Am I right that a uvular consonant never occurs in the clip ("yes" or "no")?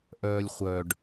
no